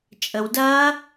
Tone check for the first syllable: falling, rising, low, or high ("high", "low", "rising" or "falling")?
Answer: low